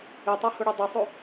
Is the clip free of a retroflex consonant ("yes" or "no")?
no